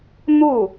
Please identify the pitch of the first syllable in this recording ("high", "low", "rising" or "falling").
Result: falling